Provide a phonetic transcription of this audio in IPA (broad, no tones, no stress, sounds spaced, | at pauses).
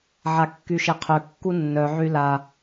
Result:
ʕ a kː y ʃ e qʰ ø kː u nː œ ʕ y l a